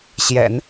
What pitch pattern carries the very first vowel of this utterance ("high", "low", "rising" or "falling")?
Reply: low